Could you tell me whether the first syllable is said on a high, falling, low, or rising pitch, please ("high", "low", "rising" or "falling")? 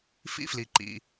high